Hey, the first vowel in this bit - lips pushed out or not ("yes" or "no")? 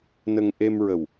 no